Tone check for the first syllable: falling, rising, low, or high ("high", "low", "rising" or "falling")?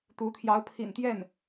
rising